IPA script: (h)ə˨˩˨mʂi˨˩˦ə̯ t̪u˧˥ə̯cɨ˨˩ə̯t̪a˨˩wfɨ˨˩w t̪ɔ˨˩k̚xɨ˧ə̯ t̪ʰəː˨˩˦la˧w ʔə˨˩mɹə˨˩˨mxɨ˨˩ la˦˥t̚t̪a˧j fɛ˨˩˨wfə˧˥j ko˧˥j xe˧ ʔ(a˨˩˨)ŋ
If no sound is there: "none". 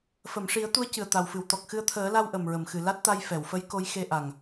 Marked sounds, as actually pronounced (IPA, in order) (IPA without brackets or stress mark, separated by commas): f, a˨˩